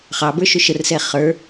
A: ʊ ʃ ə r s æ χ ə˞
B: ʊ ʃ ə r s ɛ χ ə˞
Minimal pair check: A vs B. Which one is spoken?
B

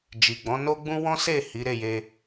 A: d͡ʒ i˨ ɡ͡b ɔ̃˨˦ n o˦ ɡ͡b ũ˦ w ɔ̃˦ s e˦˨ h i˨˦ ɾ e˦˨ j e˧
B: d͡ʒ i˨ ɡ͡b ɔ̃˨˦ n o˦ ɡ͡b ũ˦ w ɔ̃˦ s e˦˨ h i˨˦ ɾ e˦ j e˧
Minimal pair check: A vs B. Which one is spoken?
A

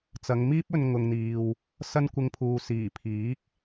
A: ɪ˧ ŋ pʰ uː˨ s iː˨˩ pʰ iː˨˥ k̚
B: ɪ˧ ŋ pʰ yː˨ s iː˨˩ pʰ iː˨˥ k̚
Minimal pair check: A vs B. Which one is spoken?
A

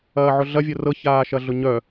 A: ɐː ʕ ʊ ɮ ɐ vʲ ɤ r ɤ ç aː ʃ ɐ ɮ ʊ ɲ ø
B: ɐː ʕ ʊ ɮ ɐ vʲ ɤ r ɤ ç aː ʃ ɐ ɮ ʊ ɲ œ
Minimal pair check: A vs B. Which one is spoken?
B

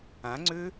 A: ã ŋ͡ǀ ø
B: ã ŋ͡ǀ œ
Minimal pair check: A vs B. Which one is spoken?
A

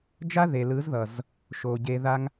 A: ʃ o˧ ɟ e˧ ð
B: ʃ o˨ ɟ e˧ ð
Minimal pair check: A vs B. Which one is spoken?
B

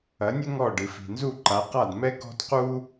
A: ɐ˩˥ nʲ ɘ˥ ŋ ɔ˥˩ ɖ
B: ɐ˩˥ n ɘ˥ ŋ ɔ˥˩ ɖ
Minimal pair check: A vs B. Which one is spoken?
A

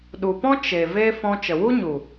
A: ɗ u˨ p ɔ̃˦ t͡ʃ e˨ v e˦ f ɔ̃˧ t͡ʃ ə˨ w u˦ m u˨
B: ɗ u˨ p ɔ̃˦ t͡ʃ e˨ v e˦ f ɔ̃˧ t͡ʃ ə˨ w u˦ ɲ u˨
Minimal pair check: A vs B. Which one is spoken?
B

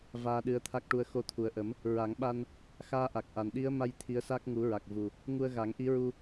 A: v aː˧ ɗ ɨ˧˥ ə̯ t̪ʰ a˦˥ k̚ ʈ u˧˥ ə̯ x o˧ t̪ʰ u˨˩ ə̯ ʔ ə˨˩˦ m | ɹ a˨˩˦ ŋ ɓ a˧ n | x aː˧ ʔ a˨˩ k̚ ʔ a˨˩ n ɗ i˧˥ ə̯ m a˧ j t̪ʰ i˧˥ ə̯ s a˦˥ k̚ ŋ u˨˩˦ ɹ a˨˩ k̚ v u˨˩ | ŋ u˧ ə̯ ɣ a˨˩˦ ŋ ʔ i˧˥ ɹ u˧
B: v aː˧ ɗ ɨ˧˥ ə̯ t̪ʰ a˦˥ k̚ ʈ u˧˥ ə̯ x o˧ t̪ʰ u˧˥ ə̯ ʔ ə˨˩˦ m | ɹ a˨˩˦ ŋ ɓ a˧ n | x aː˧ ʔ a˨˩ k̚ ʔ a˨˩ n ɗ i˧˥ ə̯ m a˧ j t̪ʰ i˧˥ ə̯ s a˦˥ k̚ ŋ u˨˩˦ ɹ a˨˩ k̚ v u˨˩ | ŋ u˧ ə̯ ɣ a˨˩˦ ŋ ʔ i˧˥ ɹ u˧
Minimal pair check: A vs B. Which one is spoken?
A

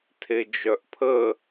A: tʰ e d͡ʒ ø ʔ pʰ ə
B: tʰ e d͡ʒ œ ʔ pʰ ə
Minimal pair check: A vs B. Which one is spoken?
B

